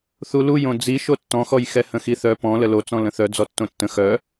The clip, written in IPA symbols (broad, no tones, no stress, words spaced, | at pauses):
θuluj õd͡zi ʃotːɔ̃xɔjxɛ hə̃xiθœ pɔ̃ ləlot͡sɔ̃ lə̃θœ d͡zɔtːõtːə̃ xœ